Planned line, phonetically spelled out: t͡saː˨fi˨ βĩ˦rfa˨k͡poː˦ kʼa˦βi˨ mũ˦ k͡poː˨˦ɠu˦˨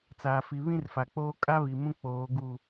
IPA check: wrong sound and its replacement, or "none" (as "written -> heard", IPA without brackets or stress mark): ɠ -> ɡ